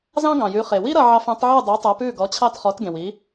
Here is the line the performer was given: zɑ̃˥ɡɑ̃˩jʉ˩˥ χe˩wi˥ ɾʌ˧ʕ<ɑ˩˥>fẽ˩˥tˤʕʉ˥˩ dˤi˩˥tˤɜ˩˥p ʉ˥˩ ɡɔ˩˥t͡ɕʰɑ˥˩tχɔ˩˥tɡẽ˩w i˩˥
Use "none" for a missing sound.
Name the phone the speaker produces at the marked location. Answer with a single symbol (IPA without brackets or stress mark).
ɑ˧